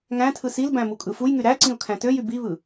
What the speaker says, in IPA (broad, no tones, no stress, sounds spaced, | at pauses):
ŋ æ̃ tʰ ɯ s i l b æ̃ m u kʼ ɯ f u j ŋ y ɾ æ ǀ ĩ ʊ̯ kʰ æ̃ t ø j y b i β ɯ